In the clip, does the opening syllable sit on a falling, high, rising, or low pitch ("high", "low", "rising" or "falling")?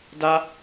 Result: high